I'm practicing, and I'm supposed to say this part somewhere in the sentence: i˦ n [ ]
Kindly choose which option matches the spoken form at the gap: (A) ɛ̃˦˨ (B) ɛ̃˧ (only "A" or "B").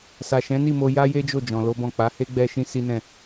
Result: A